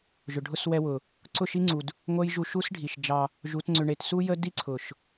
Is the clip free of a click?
no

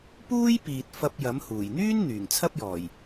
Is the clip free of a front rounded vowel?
no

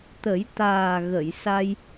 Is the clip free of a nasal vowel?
yes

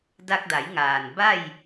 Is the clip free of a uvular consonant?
yes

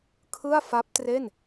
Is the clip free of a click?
yes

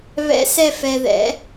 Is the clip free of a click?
yes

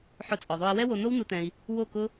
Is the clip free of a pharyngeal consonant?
no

